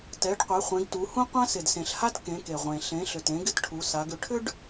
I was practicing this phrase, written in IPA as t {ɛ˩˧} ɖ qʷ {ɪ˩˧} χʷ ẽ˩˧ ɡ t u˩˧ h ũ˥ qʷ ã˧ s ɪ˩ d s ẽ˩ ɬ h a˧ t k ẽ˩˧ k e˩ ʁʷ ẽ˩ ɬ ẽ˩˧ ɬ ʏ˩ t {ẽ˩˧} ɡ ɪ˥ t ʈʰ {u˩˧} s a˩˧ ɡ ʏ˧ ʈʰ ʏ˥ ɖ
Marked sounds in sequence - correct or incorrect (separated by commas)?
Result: correct, incorrect, correct, correct